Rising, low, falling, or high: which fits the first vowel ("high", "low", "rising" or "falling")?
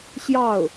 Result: falling